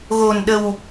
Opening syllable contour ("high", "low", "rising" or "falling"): low